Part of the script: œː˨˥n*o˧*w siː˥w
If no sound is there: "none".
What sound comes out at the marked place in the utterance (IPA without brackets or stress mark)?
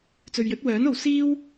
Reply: o˨˧